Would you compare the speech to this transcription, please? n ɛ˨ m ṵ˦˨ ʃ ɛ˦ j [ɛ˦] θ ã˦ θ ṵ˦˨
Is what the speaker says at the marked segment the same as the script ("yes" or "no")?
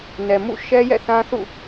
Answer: no